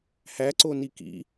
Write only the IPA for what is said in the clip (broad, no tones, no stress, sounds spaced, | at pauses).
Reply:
h æ ǀ o n i k ḭ